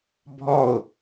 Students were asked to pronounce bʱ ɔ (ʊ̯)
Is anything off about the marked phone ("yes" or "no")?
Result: no